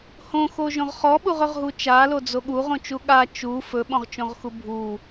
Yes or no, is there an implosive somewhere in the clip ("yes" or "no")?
yes